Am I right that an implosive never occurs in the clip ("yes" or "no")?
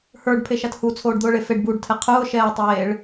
yes